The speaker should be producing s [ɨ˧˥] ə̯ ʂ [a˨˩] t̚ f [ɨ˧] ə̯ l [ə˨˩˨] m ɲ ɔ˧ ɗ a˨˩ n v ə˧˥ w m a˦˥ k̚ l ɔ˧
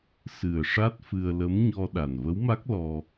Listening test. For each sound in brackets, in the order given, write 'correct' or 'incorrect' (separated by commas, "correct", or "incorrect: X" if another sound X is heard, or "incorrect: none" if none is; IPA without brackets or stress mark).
incorrect: ɨ˨˩, incorrect: a˦˥, correct, incorrect: ə˧˥